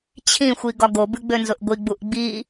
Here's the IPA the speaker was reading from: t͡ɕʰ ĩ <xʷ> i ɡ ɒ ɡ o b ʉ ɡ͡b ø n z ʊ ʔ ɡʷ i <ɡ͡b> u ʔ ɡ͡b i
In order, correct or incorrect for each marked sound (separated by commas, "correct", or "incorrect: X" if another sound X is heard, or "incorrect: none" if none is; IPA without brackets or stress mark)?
correct, correct